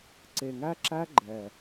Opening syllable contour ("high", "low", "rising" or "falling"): low